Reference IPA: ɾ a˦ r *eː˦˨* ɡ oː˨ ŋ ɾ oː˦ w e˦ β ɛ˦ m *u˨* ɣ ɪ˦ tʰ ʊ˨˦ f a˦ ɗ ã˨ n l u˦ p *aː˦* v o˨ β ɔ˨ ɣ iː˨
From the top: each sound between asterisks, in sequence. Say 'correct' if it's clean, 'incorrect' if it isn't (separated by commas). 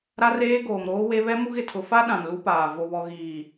incorrect, incorrect, incorrect